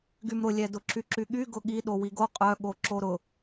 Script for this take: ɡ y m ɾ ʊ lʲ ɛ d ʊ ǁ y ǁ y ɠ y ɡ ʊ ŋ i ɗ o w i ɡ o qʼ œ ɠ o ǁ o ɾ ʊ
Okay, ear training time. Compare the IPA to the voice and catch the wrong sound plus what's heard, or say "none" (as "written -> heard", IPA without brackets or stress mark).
ŋ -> ɠ